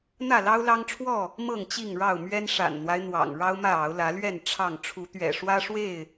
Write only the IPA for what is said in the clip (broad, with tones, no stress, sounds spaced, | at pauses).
n̪ ä˥˨ l ɑ˦ ʊ̯ l ɑ˦ ŋ ʈ͡ʂʰ w ɔ˥˨ | m ɤ˥˨ ŋ t͡ɕ i˥˨ ŋ ɻ ɑ˥˨ ʊ̯ m ɥ ɛ˦ n ʂ a̰˨˩ n n̪ w a˦ ɪ̯ n̪ w ɑ̰˨˩ ŋ ɻ ɑ˦ ʊ̯ m ä˥˨ ɑ˨˦ ʊ̯ l ä˨˦ l ɥ ɛ˥˨ n ʈ͡ʂʰ ɑ˥˨ ŋ ʈ͡ʂʰ u˨˦ t̪ ɥ ɛ̰˨˩ ʂ w ä˦ ʂ w e˥˨ ɪ̯